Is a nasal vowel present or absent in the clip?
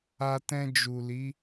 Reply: present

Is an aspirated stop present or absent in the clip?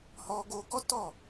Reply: absent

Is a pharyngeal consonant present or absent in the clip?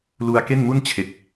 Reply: absent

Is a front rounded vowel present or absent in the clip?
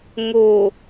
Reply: absent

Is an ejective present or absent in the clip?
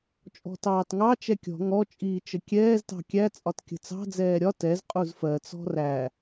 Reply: present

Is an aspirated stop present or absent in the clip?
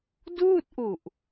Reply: absent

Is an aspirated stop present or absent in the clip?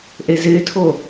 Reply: present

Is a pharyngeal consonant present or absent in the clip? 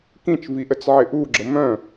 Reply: present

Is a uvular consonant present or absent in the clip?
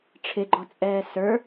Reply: absent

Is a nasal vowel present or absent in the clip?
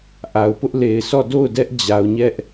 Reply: absent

